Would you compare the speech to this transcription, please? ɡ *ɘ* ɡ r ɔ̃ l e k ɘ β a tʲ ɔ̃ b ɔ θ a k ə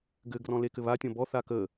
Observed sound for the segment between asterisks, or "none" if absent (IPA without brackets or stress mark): ɘ